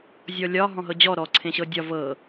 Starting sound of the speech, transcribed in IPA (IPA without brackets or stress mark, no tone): zʲ